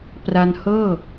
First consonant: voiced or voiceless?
voiceless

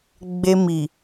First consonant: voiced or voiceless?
voiced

